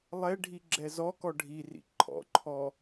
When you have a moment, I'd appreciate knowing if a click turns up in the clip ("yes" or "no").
yes